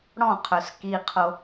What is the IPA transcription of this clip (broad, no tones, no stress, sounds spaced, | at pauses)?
ɽ ɔ̃ qʰ œ s k i qʰ o